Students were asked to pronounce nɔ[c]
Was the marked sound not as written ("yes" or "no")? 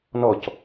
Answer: no